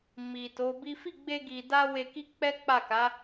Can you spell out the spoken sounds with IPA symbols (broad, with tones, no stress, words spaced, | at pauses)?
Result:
mi˨to˨˦bi˦ fi˦˨ɡ͡be˧ɡi˨da˧ we˧ki˦ k͡pɛ˦k͡pa˦˨ ka˨˦